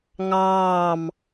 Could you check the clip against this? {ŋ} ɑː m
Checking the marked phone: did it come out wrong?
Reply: no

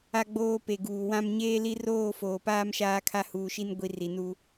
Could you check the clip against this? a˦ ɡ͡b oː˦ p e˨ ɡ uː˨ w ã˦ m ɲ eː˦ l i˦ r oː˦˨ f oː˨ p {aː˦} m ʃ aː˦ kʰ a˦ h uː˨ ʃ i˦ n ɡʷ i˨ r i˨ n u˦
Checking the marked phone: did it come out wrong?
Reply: no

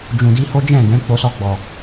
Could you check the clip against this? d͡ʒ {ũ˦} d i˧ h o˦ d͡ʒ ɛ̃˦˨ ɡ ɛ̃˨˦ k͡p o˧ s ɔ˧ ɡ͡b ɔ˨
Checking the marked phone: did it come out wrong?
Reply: yes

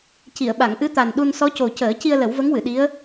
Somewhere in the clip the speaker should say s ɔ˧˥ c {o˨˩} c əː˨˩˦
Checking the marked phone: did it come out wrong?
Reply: no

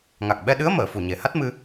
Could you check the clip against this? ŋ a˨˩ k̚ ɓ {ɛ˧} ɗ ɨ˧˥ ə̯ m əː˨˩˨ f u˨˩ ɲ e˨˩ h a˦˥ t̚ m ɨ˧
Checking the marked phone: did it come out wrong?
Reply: no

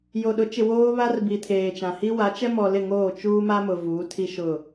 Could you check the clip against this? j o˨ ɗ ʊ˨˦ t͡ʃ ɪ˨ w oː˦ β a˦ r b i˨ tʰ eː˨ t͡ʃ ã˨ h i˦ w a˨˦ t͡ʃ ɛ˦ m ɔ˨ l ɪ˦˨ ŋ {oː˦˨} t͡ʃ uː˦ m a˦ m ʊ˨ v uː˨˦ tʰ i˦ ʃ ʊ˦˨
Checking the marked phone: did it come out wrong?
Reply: no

